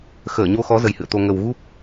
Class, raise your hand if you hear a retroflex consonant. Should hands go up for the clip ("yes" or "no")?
no